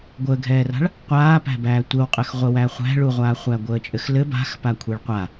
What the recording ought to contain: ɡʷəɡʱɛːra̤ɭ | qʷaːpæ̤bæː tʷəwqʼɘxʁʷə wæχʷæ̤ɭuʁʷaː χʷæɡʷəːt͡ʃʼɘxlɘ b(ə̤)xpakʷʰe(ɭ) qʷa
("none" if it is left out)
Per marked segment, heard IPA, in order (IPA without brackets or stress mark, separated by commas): a̤, ɭ